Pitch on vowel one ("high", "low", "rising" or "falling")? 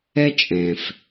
high